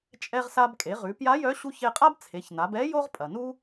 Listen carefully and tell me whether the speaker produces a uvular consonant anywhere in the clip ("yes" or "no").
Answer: yes